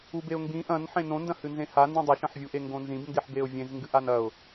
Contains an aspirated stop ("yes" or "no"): no